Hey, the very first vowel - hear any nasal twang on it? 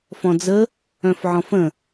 yes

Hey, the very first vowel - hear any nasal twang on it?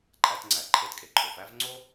no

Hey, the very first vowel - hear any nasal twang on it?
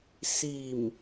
no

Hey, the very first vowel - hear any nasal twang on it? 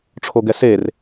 no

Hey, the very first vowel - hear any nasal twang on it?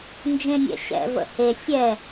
yes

